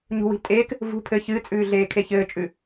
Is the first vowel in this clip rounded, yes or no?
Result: yes